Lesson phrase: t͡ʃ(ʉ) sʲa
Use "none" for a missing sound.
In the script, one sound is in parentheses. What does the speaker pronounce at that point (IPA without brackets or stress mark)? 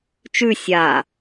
ʉ